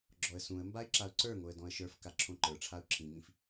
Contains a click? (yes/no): yes